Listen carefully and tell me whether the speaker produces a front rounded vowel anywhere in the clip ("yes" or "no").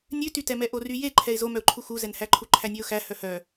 yes